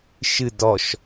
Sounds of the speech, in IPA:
ʃɨ dɔʃ

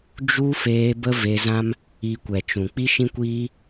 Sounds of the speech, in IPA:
d͡ʒu˦ feː˧bə˦ ve˧zã˦m | i˧kʷɛ˨t͡ʃũ˨ k͡pi˦ʃĩ˦kʷiː˦

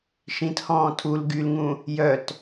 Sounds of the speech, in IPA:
ʃĩthɔ̃ː tʰul ɡylŋũ | jœt

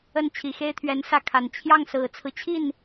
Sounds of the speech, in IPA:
ə˥˩nt͡ɕʰi˨˩xe˥ɪ̯t̪ʰɥɛ˧˥n sä˥˩kʰa˨˩n t͡ɕʰjɑ˥˩ŋsɹ̩˨˩t͡sʰɹ̩˦t͡ɕʰi˥˩n

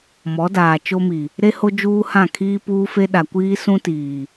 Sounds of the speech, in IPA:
mɔ˨˦daː˨ t͡ʃo˦mi˨ | ɾe˦ho˦ d͡ʒuː˦hã˦˨ kʰiː˦ puː˦fe˦ ɗa˨kʷiː˦sũ˦tiː˨

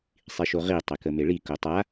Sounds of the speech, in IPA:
sˤiʃoʁi tˤekəmeɭi kotˤa

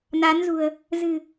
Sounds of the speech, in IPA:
na˨˦nzṳ˨˩ə̯ | zɨ̤˨˩

